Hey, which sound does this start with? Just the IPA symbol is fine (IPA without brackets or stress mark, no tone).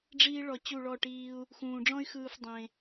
ɖ͡ʐ